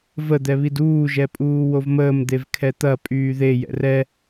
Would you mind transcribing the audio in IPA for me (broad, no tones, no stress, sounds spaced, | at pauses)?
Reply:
v ə d̪ ɛ β i d uː ʒ ɛ pʼ uː w o v m əː m d̪ e v kʰ ɛ t̪ ɐ pʼ yː ð e j ɛ̰ r ɛ